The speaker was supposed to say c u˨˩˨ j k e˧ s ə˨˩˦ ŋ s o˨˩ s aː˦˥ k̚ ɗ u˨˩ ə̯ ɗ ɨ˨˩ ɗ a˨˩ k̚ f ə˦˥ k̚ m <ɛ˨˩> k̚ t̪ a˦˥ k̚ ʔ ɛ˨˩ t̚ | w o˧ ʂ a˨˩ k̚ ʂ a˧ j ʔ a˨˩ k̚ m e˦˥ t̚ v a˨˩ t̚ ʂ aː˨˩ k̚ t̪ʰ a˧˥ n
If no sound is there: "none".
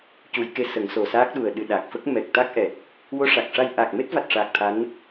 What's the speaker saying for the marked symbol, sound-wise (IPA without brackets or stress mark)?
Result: ɛ˨˩